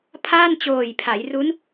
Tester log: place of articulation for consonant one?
labial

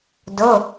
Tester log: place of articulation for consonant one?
alveolar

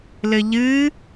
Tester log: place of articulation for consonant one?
alveolar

